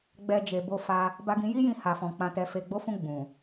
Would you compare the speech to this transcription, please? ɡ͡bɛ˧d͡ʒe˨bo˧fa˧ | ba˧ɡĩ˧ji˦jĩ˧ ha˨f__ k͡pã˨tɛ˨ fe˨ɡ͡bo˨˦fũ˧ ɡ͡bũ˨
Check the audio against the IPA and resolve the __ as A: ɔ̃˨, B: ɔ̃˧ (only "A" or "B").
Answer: A